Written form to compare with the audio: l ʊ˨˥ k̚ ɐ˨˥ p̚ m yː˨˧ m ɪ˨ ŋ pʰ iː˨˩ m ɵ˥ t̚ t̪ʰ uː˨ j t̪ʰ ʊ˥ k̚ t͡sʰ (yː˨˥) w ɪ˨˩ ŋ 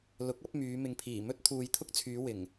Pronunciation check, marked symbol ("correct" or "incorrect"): incorrect